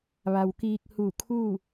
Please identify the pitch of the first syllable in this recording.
low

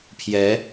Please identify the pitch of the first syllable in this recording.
rising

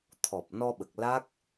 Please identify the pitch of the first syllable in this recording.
low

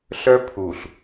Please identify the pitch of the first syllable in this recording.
high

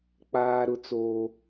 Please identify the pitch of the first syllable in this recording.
high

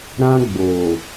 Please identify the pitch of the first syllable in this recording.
high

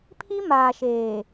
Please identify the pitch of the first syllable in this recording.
high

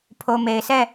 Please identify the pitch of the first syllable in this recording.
low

